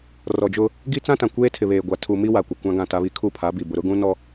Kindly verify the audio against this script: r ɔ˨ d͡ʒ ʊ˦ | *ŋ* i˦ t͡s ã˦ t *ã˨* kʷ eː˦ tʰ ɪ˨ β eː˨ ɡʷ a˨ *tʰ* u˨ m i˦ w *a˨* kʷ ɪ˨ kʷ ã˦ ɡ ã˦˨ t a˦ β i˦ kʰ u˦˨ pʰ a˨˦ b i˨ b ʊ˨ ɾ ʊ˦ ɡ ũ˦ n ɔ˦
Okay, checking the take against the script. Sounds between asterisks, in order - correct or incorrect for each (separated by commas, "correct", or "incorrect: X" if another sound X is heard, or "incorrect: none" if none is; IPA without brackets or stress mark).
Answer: incorrect: ɡ, correct, correct, correct